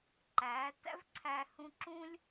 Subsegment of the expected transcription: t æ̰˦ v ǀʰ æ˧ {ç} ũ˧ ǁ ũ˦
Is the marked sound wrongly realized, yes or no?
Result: yes